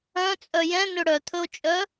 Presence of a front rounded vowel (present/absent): present